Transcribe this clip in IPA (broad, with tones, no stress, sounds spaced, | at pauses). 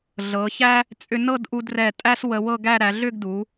ɮ ɤ˩˧ ç æ˥ | t͡sʼ ʏ˧ n ɤ˥˧ d ʔ u˧ d r ɛ˧˩ tʼ æ˥ s w ə˧ w ɤ˥˧ ɡ æ˥˧ ɾ æ˩˧ ɮ ʏ˥˧ ɡ d u˩˧